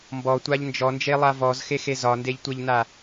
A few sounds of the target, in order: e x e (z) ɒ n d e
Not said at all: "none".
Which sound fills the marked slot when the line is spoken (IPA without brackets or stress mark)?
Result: z